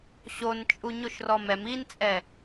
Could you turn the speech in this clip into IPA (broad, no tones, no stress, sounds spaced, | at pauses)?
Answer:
ɕ o n t͡ʃʼ u ɲ o ʃ r ɔ m ɛ m i n t͡sʼ ɛ